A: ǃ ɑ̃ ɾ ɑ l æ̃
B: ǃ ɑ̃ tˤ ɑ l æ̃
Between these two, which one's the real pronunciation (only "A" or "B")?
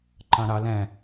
A